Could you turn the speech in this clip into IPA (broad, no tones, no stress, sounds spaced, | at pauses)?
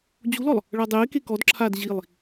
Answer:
d͡ʑ u l ɔ lˠ | ɭ a dˤ eː k e k ɔ d ǁʰ aː d ʑ i lˠ